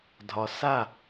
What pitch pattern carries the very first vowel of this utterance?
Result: low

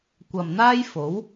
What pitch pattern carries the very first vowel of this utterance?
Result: low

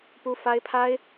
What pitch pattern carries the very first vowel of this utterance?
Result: high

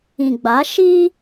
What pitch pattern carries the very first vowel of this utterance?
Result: low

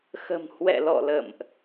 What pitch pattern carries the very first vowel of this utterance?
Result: low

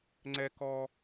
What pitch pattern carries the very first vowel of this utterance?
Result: high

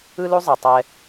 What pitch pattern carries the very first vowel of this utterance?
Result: high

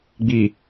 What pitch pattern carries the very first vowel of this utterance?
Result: low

